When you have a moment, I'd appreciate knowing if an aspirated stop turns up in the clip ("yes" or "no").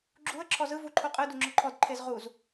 yes